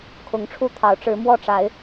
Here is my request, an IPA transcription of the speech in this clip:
kʰ ʊ˨˦ ŋ ʈ͡ʂʰ u˦ t̪ʰ ɑ˨˦ ʊ̯ ʈ͡ʂ ɻ̩˨˦ m w ɔ˥˨ ʈ͡ʂ a˨˦ ɪ̯

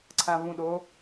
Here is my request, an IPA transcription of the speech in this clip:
ǀʰ ã v ũ ɗ o

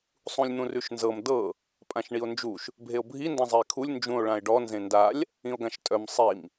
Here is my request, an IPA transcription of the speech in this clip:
sˤ ũ lʲ n̪ ũ r ʉ ʃ n z ɤ m d ɤ | pʼ ã ʃ ɳ i o̯ n d͡ʒ u ʃ | bʱ e o̯ bʱ i n d ã zˤ i e̯ kʰ u lʲ n d͡ʒ ũ o̯ ɭ ã e̯ ɖ ɔ n z ẽ n d a lʲ | ĩ o̯ ɡ ã ʃ tʼ œ m sˤ i m

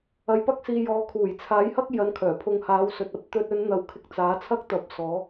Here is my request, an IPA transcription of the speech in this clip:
ɐ˧ j p ɐ˥ k̚ s iː˧ j ɔː˨˧ kʰ uː˨˩ j t͡sʰ aː˨˥ j h ɐ˥ k̚ j ɐ˧ n kʰ œː˨˩ pʰ ʊ˧ ŋ h aː˨˥ w s ɵ˨ t̚ ɐ˨˥ p̚ t̪ ɵ˧ t̚ ɵ˨˧ n n̪ ɐ˨ w kʰ ɪ˧ k̚ t͡s aː˨˥ t͡sʰ ɐ˥ k̚ t̪ ɐ˨˥ p̚ s ɔː˨˥

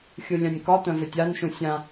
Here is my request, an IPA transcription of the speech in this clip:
xʲ u lʲ ã nʲ k ɒ t̪ œ̃ v ʏ tʲ a n ʃ ũ sʲ ã

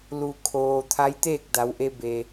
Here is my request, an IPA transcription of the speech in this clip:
l u˩ kʰ oː˩ t̪ʰ a˧˥ j t̪ eː˥˨ k̚ d a˩˧ w ʔ e˧ b e˩

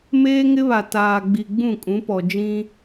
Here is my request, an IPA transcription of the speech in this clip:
m eː˦ ŋ ɪ˦ β a˨ t aː˨ ɡ͡b i˨ ɡ͡b ũ˦˨ kʼ ũ˨˦ p ɔ˨ d͡ʒ ĩ˦

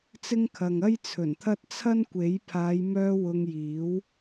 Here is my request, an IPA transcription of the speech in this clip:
t͡s ɪ˥ ŋ kʰ ɐ˨ ŋ ɐ˥ j t͡sʰ ɵ˨˩ n t̪ʰ ɐ˥ t̚ t͡sʰ ɐ˥ n kʷ e˨˥ j pʰ aː˨˧ j m œː˧ w ʊ˧ ŋ j iː˨˥ w

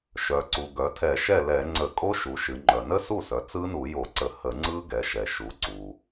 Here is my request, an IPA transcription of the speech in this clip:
ʃ œ˩ ǀ u˩ ɡ œ˩˧ tʰ ɛ˧˩˧ ʃ ɛ˥˩ l ɛ˧˩˧ ŋ͡ǀ ə˧˩˧ kʼ o˦˥ ʃ u˩˧ ʃ ɨ˩˧ ŋ͡ǃ œ˩ n ə˦˥ s u˥˩ s œ˩˧ t͡s ɯ˦˥ n u˧˩˧ j o˧˩˧ ǀ ə˧˩˧ h ə˧˩˧ ŋ͡ǀ ɯ˦˥ ɡ ɛ˩˧ ʃ ɛ˩ ʃ u˩˧ ǀ u˩

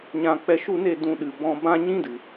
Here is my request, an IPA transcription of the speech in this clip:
ɲ ã˨ k͡p ɛ˨ ʃ u˦˨ n e˦˨ d ũ˧ ɗ ɨ˨ b ɔ̃˧ b ã˦ ɲ ĩ˦ d ɨ˨

